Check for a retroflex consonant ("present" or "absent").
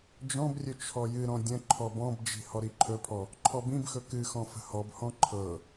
absent